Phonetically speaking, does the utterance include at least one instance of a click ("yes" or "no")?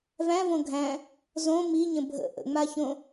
no